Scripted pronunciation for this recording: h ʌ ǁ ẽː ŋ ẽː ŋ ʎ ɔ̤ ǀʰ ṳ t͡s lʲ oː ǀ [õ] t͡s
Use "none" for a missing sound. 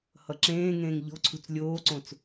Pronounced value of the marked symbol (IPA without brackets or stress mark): õ